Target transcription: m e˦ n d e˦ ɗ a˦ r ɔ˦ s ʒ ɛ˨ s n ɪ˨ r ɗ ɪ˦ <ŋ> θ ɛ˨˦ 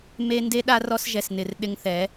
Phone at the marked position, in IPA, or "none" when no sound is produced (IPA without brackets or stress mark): ŋ